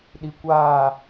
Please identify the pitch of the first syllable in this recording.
low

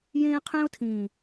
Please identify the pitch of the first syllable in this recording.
high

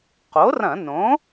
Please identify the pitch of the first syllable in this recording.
rising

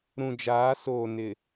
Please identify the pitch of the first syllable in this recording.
low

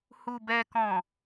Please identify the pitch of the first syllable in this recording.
low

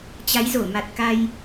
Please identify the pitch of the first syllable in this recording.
rising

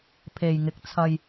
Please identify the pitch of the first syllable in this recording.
low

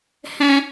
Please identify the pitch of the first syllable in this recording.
high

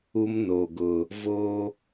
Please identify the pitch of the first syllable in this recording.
high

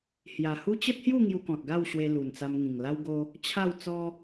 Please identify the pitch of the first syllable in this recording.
low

